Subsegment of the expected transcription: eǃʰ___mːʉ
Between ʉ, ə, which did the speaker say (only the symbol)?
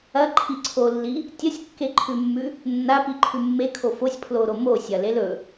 ʉ